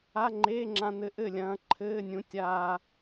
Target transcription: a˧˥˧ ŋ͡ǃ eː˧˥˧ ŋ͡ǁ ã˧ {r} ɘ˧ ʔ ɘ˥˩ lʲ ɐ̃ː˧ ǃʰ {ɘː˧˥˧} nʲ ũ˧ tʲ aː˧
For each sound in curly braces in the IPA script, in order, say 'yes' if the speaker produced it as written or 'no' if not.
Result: no, yes

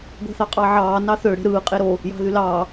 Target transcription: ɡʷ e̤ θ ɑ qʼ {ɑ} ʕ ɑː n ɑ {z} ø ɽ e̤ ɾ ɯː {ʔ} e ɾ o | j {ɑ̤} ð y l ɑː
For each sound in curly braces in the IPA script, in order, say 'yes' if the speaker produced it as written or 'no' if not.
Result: yes, no, no, yes

